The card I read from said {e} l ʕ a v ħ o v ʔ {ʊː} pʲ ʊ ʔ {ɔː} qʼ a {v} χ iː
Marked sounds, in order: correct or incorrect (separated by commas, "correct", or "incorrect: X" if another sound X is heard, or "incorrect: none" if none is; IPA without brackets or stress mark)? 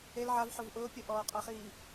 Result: correct, correct, correct, incorrect: none